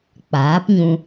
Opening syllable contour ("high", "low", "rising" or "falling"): rising